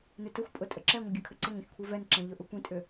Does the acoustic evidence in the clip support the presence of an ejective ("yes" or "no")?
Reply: yes